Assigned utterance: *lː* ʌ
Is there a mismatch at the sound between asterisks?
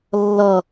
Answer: no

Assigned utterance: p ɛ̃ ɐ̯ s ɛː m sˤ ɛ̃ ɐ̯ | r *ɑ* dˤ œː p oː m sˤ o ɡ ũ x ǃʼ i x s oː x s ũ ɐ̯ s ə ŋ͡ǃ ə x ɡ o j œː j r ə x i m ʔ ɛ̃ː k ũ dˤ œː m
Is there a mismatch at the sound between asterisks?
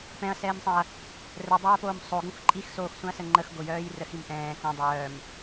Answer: yes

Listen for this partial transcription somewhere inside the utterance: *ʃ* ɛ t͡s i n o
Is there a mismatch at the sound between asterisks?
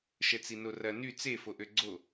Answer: no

